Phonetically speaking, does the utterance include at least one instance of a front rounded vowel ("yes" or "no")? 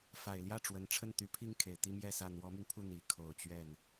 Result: yes